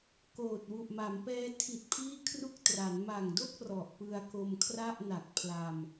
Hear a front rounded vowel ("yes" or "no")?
no